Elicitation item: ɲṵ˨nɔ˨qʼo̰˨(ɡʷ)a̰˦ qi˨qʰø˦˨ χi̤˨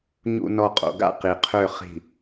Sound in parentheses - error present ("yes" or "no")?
yes